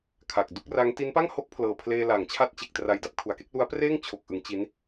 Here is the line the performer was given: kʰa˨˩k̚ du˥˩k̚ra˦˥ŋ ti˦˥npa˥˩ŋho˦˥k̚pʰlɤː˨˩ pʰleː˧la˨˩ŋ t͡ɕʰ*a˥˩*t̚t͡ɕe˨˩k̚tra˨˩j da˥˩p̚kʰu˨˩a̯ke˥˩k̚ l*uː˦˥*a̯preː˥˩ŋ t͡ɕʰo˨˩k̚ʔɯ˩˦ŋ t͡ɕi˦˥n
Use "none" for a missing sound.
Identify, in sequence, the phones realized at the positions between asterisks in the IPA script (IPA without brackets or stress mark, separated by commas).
a˦˥, u˦˥